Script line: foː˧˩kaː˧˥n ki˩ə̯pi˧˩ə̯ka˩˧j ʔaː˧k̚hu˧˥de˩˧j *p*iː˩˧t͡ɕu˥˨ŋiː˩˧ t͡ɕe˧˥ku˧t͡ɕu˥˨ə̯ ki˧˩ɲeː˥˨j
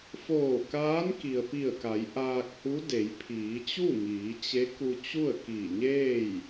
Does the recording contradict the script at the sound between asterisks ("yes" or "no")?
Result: yes